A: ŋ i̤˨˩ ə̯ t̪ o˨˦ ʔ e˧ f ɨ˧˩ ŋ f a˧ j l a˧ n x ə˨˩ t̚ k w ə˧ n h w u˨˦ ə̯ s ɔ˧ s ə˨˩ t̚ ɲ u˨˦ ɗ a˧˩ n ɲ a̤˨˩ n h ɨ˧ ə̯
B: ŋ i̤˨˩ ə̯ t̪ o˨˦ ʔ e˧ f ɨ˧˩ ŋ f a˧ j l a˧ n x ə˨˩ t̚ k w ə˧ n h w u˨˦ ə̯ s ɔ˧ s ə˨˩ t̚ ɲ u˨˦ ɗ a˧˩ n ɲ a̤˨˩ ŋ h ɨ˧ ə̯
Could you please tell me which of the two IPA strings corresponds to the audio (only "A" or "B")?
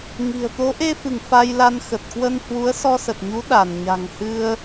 B